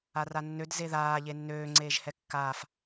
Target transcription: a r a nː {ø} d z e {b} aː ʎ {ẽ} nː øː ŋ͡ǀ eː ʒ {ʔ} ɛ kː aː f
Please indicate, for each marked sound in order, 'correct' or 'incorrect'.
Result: correct, incorrect: ð, incorrect: e, incorrect: h

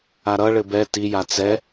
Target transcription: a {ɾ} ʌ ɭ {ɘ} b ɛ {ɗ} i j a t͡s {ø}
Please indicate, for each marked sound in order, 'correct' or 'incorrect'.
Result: correct, correct, incorrect: t, incorrect: ɛ

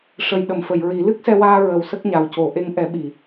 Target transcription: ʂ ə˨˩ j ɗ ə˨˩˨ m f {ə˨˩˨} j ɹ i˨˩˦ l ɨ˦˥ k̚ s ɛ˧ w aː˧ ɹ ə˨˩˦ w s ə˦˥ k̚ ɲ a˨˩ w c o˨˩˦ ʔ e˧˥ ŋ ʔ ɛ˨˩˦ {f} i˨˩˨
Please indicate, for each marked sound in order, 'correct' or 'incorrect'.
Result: correct, incorrect: ɓ

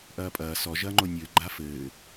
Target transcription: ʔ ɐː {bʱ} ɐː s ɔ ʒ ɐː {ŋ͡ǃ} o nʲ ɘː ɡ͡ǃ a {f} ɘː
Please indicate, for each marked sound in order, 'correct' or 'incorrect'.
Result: incorrect: pʼ, correct, correct

